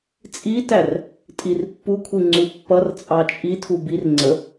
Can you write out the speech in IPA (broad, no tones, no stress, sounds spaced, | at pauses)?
t͡sʼ i t æ r | tʼ i r pː u kʷʰ i ŋ͡ǀ u pː ʌ r t͡sʼ ɑ t͡ʃʼ i tʰ u b i r ŋ͡ǀ ə